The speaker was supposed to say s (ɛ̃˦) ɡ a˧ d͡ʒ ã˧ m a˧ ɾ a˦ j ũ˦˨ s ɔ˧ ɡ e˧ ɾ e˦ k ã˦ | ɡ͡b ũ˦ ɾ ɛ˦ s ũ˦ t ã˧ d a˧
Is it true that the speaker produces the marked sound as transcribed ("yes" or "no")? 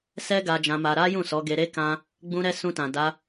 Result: no